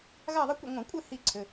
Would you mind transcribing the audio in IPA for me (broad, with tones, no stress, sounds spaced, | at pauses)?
ɣ a˥˧ ðˤ ə˦˥ kʷ ə̰˥˧ ŋʷ ə̃˧˩˧ kʷʼ ɘ˥˧ h i˥˧ ǀʰ ɘ˩˧˩